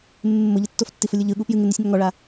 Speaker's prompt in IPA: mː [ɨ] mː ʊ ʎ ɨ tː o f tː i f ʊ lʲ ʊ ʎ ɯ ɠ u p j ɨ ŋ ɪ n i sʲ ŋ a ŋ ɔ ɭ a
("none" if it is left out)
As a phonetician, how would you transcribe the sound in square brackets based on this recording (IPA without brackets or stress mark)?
ɪ